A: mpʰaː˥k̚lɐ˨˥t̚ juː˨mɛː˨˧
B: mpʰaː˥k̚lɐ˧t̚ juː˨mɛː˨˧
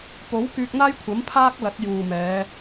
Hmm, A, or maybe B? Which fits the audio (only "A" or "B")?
A